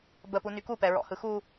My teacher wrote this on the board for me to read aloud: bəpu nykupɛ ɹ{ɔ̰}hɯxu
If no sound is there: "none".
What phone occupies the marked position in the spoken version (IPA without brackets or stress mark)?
ɔ̰